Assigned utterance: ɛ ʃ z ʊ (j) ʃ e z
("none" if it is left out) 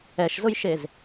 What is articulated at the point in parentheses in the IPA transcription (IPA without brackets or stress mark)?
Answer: j